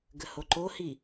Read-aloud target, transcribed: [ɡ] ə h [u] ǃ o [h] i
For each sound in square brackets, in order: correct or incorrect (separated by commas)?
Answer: correct, incorrect, correct